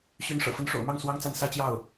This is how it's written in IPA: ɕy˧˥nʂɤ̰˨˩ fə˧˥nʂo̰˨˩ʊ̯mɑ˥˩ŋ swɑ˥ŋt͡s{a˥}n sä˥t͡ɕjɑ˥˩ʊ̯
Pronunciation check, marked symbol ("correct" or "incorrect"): correct